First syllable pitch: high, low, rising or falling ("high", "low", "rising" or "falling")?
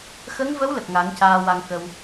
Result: rising